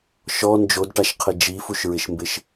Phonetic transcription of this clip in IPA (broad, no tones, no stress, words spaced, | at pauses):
ʃɔ nd͡ʒodʈaʃqʰɪ d͡ʒifuʃɹɪʃmbɪʃ